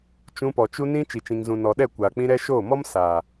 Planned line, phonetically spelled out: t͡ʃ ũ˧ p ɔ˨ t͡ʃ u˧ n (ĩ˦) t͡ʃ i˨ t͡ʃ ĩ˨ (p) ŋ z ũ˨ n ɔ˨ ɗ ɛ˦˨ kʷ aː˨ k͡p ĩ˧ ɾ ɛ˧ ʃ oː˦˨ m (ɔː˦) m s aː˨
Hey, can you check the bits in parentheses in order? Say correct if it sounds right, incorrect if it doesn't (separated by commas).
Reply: correct, incorrect, incorrect